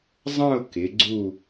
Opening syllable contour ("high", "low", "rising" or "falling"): falling